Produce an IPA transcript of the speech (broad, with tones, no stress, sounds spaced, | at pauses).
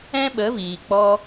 ɛ̃˦ ɓ ə˨˦ v iː˨ k͡p ɔ˧